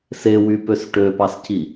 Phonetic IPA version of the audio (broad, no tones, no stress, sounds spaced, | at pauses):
s e w y p ø s ʈ ø p ɑ s c i